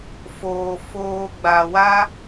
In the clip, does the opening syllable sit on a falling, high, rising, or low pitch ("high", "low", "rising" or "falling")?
low